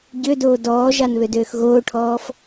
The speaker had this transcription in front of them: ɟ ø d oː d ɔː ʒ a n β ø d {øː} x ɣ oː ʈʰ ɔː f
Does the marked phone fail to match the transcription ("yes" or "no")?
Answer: no